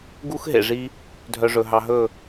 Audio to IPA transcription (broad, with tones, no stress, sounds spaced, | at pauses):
ɡ u˦ x ɦ ḛ˨ ʐ i˧ | dʱ œ˧ ʐ ɵ˨ ɦ ɑ˧ ɦ ɵ˦˨